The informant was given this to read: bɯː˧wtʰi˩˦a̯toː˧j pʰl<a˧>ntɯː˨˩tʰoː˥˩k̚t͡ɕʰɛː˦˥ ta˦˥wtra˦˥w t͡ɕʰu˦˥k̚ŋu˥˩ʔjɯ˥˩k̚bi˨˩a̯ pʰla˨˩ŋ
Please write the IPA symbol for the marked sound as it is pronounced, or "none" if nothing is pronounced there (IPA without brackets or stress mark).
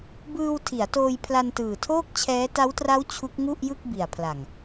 a˧